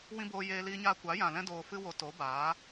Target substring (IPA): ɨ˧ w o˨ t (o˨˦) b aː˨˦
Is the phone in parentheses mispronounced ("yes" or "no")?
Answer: no